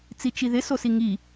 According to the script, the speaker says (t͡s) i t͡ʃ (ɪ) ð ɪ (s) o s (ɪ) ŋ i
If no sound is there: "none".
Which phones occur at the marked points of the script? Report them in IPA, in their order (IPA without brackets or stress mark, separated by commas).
t͡s, i, s, i